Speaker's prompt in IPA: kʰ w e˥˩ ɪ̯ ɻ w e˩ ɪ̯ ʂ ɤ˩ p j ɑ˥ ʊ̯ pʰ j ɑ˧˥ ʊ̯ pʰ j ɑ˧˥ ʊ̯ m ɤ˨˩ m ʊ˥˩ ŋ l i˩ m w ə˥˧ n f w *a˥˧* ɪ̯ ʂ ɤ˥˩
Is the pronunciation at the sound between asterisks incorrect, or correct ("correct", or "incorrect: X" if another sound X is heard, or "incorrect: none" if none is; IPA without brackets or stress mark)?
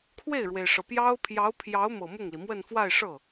correct